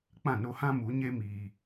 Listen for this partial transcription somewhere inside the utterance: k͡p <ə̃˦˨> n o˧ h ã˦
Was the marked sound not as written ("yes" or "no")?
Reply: yes